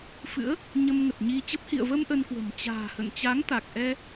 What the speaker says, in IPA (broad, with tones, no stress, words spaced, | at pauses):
fɨ̰˧˥ə̯ | ɲə˧mŋə˨˩t̚ɲi˧t͡ɕə˦˥p̚ hḭ˧˨ə̯və˧m ʔə˧nkwə̤˨˩m t͡ɕa̤ː˨˩hə̰˧˨n t͡ɕa˨˦ŋt̪a˨˩k̚ʔɛ˧